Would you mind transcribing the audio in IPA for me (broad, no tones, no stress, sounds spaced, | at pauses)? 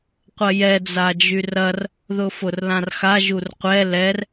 qʷ ɐ j ɛ d͡z a d͡ʒ y r ɐ r | ð ʊ f ʊ r l ã r x a ʒ u r qʷ ɛ l ɛ r